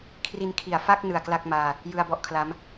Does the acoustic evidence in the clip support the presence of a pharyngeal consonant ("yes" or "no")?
no